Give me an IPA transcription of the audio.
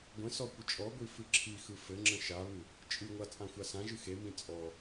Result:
ɡʷə̃sɔ kʷət͡ʃʼɔɡʷi fɨǁʰixɯ fɘŋ͡ǁə̃ ʃaβɨ | t͡ʃʼɨŋʷa t͡sʼãxʷasãʒɨ xemĩ t͡sʼɔ

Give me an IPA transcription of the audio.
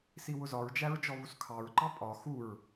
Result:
siwʊzɒɹd͡ʒæɹ d͡ʒɔβuskʰɑɹǃɑ pʼɒ xuɹ

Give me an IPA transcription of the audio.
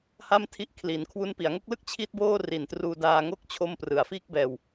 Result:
ha˥˩mtʰi˥˩ʔkʰli˩˦n kʰwu˦˥npi˩˦a̯ ŋo˦˥k̚lɯ˥˩k̚ t͡ɕʰi˥˩t̚boː˥˩ ri˨˩ntruː˧daː˧ŋo˥˩k̚ t͡ɕʰo˦˥m prɯ˩˦a̯fiː˥˩k̚bɛː˧w

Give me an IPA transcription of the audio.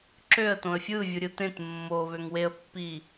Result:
ǁøə̯tõə̯ fʲɯvʲuɾʲɯ tẽt mːoβøŋ weə̯pːi

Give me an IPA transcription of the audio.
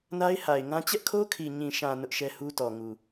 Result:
na˦ɪ̯ha˨ɪ̯ŋã˦ t͡ɕɛ˦ʔkʰo˦kʰi˨ ɲĩ˨ʃã˨ nʊ˦ʔʃɛ˦hu˦tɔ˨ ŋu˨

